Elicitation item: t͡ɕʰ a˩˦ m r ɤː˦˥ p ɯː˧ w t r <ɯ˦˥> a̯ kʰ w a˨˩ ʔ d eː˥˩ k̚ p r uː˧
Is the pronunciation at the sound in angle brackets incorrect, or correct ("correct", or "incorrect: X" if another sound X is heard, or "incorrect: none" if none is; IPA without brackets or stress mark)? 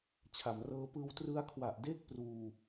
correct